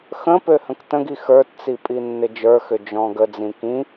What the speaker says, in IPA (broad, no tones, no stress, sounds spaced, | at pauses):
x ə̃ p ø h ə̃ k t ə̃ ɡ i x ə˞ t t͡s i pʼ i nː ɪ d͡ʒ ə˞ x ʏ d͡ʒ ɔ̃ː ɡ ə d͡z ĩ k ĩ